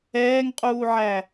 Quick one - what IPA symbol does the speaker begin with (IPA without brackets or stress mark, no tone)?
ɛː